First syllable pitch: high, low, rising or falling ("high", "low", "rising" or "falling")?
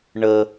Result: low